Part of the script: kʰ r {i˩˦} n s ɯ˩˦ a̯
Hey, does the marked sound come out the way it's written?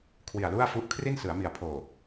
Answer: no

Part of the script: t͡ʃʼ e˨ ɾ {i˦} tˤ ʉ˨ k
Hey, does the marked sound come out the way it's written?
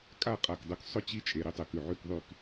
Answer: yes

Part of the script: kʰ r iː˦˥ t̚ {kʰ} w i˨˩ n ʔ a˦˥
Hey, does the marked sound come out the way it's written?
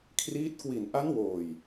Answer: no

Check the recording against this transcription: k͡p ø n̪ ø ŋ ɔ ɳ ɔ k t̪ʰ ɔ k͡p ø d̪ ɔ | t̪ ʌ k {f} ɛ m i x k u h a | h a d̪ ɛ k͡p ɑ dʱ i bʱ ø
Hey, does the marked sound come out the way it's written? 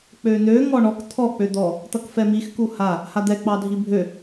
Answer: yes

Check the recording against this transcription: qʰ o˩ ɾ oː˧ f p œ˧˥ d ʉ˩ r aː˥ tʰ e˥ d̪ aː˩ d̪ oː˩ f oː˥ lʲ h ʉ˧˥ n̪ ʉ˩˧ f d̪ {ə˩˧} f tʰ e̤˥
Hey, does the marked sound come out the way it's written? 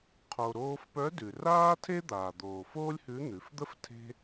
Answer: no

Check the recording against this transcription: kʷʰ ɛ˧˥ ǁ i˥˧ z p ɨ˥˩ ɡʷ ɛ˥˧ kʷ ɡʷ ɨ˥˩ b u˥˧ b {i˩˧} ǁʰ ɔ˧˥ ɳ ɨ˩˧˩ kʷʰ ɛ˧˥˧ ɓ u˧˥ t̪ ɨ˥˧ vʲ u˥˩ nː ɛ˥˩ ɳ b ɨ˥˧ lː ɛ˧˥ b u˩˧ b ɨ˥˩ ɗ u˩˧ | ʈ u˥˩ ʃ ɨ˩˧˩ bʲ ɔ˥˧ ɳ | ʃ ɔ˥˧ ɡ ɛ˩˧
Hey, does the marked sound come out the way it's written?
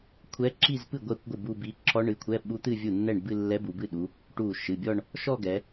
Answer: no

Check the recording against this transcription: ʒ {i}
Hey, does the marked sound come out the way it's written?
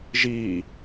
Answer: yes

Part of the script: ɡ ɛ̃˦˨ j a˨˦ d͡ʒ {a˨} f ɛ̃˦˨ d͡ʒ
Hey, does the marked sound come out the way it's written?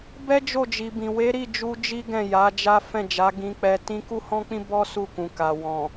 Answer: no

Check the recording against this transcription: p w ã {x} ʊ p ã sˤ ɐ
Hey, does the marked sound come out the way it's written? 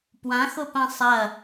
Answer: yes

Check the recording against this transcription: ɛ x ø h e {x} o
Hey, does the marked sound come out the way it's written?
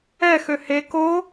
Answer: no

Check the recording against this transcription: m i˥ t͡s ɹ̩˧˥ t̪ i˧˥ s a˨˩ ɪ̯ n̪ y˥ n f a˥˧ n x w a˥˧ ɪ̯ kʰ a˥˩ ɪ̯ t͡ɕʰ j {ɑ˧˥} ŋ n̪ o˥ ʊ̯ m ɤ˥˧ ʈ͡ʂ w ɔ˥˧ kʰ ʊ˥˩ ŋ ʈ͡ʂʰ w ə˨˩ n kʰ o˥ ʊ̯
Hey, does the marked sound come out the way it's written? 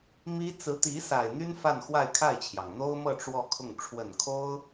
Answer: no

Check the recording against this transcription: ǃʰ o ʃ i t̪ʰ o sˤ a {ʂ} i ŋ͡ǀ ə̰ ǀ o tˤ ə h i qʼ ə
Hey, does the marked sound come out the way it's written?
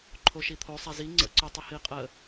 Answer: no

